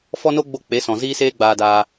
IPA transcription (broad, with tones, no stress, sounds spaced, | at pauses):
f ɔ˦ n o˦ ɡ͡b o˧ k͡p e˨˦ s ɔ̃˨ z iː˦ s eː˦ ɡ͡b aː˧ d aː˧